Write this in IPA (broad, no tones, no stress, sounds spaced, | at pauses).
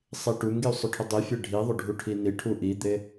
sˤ i ʈ u ŋ ɡ i u̯ sˤ ʊ ʈʰ ʊ dˤ i fʲ e ɖʱ i ðˤ ʊ ɖʱ u ʈʰ i n i ʈʰ u ʔ i d̪ e